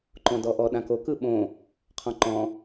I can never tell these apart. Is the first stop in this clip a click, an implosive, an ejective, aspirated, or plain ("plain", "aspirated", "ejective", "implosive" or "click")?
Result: click